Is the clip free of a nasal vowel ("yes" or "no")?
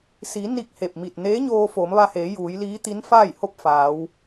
yes